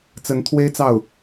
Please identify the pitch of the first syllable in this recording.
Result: rising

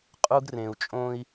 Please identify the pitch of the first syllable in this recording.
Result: high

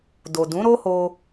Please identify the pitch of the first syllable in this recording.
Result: low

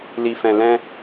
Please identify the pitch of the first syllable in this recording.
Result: low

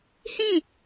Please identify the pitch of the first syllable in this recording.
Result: falling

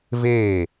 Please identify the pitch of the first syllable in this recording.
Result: falling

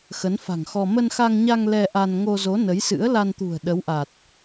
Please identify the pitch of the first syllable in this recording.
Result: rising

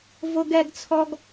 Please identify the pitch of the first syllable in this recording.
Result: high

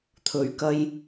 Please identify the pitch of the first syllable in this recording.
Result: low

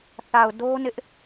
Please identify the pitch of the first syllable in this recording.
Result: low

